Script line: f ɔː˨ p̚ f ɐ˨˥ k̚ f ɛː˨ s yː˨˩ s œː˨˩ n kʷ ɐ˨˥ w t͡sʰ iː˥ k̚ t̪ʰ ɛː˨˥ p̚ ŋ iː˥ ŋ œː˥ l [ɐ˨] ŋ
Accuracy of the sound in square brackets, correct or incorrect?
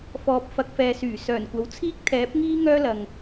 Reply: correct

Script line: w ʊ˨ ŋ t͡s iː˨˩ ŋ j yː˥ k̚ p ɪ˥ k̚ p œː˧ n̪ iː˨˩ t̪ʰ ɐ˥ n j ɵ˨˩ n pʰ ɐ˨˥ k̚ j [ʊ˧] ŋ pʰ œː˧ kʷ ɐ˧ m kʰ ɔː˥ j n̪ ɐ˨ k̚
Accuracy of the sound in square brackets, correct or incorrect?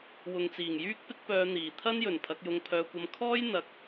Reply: correct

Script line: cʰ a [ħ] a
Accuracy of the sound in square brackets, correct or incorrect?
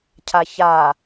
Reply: incorrect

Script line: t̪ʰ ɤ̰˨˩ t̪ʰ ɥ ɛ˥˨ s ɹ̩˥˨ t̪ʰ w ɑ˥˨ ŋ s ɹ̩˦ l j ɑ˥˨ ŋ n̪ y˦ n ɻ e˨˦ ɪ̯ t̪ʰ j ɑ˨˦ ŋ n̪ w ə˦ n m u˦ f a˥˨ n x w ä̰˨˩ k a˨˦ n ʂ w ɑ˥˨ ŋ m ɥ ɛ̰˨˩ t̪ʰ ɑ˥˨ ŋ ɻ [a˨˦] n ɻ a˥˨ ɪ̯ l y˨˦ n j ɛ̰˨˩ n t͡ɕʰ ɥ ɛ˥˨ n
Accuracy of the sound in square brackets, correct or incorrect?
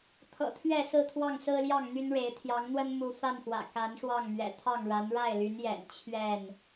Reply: correct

